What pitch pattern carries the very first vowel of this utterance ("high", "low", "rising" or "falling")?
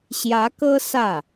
rising